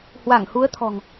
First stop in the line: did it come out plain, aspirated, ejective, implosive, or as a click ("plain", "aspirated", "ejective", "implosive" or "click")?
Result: aspirated